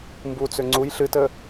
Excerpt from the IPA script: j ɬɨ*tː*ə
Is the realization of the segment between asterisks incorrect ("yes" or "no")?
yes